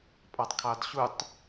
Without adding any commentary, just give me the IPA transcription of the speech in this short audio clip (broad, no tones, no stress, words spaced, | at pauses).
pʼɑtˤkʰɑdɕutˤ